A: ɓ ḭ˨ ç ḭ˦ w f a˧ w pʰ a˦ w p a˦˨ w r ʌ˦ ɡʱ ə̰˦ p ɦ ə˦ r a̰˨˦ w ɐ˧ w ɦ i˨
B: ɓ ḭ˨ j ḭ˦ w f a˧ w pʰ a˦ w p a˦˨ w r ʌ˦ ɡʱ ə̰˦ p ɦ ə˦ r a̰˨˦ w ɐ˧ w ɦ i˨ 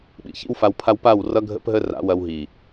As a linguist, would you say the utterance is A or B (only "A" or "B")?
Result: A